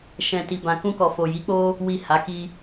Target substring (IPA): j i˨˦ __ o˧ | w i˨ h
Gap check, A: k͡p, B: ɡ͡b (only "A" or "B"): A